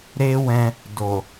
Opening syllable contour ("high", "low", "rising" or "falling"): high